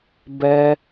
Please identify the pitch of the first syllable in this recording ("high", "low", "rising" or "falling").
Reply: high